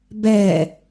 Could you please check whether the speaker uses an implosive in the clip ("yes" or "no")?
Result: no